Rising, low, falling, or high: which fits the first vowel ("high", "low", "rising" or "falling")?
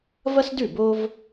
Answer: high